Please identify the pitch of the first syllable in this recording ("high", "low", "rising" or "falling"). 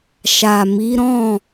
low